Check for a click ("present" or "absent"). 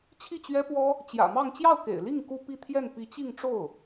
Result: absent